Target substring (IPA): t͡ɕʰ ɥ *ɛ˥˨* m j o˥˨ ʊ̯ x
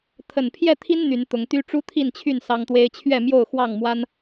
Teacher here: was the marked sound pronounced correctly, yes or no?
yes